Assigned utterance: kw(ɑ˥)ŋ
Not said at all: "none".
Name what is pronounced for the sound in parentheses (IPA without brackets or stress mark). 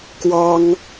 ɑ˥